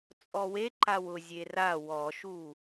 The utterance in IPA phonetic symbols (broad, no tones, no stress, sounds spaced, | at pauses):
t͡sʼ ɔ w e ǃ a w ʊ zʲ e r a w ɔ ʃ u